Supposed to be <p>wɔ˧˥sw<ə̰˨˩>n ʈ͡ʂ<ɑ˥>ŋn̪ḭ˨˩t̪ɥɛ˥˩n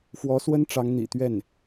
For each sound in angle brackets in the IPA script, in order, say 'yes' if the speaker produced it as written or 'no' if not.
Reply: no, no, no

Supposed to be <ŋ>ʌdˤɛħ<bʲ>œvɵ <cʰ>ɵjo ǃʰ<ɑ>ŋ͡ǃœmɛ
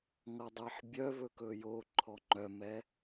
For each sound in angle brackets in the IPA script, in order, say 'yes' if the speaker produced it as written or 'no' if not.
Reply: yes, yes, no, no

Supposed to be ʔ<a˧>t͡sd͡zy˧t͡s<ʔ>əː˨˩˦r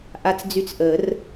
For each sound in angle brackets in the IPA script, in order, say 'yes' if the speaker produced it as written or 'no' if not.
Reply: yes, yes

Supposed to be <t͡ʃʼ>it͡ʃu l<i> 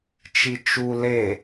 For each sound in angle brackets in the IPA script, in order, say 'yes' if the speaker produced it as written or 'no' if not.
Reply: no, no

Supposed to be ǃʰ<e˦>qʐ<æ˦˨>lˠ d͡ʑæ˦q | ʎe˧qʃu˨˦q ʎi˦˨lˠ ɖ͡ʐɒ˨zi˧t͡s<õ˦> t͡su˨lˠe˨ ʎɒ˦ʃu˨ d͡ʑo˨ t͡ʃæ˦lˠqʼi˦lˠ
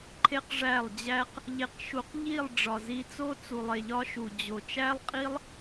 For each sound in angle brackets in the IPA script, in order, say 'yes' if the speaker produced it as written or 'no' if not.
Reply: yes, yes, no

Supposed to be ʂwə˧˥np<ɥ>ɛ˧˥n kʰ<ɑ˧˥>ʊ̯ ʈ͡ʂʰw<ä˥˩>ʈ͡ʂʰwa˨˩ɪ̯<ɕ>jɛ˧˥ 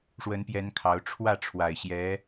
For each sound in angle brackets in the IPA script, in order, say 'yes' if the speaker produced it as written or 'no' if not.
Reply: no, yes, yes, yes

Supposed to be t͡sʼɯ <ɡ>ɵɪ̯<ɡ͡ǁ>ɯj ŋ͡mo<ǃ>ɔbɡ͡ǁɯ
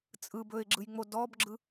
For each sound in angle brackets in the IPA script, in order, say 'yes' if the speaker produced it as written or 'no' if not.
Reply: no, yes, no

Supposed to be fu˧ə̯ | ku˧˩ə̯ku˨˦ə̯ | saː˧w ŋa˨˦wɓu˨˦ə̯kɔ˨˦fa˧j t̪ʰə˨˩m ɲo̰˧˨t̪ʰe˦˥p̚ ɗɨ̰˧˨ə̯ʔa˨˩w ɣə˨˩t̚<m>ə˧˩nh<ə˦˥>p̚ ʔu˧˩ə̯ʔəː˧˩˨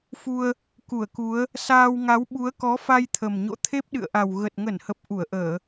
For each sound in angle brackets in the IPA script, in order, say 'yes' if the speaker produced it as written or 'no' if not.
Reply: no, no

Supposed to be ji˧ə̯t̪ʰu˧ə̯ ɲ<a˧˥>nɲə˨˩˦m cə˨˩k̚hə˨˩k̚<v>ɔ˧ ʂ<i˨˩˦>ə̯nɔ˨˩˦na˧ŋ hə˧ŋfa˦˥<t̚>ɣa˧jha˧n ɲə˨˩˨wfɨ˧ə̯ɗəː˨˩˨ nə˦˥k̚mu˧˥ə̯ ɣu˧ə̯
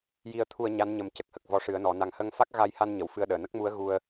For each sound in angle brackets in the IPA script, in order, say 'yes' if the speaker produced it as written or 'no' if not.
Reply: yes, yes, no, no

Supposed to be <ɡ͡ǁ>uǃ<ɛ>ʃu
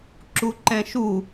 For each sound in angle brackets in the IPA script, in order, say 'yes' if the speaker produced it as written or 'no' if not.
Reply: no, no

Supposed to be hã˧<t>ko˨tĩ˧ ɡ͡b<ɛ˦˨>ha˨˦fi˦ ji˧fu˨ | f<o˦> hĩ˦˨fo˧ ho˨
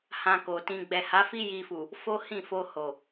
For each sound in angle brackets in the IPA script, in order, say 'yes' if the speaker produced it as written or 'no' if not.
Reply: no, no, yes

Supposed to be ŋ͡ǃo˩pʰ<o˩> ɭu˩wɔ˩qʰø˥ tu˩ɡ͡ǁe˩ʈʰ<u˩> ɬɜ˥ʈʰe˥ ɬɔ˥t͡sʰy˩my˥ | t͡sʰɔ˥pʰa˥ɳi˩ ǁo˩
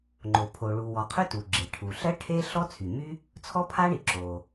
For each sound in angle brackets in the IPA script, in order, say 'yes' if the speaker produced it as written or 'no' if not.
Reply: yes, yes

